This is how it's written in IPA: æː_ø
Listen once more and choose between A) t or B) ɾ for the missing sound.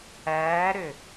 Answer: B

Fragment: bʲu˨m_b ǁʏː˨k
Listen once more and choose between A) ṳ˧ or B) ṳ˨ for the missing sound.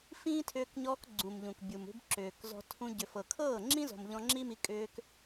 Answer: A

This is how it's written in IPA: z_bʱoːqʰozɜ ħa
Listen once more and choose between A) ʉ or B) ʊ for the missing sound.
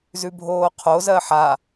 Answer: A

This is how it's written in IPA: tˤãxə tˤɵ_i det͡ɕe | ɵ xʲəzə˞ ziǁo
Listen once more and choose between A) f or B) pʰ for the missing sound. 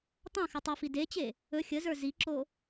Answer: A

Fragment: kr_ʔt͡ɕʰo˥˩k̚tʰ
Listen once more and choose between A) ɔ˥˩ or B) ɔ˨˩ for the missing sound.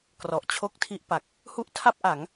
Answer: B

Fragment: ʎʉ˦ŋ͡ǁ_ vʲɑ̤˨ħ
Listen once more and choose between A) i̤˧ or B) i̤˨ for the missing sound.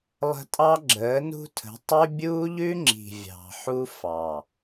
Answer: B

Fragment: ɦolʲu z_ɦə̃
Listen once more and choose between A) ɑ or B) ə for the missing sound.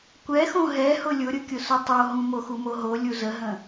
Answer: B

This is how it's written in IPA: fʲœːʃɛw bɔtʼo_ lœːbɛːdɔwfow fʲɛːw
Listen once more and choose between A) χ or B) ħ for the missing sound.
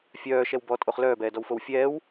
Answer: A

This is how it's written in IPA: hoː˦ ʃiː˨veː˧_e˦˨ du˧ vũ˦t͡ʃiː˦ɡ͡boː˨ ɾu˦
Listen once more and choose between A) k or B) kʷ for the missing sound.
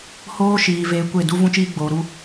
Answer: B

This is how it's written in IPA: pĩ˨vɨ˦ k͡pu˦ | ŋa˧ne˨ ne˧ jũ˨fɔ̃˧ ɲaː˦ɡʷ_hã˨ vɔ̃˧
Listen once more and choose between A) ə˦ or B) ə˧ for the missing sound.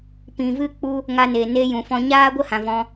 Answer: A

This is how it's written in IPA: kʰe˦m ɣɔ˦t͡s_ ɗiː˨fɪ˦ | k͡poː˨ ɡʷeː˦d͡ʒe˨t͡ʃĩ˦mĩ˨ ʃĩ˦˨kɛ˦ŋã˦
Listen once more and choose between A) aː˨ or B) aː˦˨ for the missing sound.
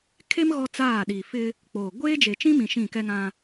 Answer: B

